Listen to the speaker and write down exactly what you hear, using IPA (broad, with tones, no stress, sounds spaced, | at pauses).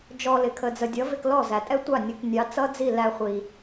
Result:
d͡ʒ ɔ˧ l ɪ˨ kʰ ə˨ d͡z ə˨ dʲ ʌ˨˦ v ɪ˧ k l ɔ˦˨ z æ˨ tʼ ɛ˦ tʷ ɑ˦˨ nʲ ə˨˦ k nʲ ɑ˨˦ t͡s ʌ˦ d͡z i˦˨ l æ˧ χʷ i˨